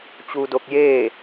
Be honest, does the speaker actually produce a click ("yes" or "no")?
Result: no